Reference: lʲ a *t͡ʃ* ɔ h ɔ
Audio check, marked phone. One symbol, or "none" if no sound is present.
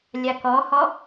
k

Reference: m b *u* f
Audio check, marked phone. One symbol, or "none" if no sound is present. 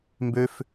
ø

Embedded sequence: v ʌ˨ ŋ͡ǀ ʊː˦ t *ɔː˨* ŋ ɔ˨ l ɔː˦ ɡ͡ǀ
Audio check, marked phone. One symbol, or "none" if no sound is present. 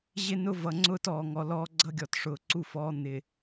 ɔː˨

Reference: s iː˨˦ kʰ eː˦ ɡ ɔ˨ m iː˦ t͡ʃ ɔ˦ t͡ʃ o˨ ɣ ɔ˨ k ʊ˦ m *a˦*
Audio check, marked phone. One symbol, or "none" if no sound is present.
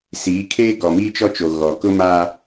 aː˦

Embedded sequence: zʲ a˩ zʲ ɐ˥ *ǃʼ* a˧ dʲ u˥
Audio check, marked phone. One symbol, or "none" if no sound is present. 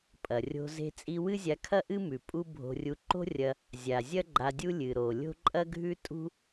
ɡ͡ǃ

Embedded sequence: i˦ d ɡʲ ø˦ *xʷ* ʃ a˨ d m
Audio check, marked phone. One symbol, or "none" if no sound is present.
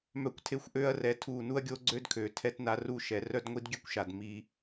kʷ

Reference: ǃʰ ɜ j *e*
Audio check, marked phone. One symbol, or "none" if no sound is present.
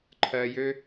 ø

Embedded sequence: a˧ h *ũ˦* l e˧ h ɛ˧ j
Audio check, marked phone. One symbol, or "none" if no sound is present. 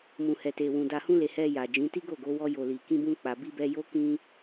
ũ˦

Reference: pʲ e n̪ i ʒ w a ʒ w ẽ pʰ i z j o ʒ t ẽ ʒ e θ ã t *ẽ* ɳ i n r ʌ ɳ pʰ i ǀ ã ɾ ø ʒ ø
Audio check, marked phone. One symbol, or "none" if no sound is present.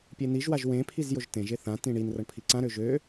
ĩ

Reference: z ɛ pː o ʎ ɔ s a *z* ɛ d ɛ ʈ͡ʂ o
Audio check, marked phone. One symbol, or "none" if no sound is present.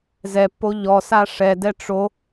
ʂ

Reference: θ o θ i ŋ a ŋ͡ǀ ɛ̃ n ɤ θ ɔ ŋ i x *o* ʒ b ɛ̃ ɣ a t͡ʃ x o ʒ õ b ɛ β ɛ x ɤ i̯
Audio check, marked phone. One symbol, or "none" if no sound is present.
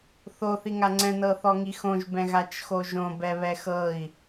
õ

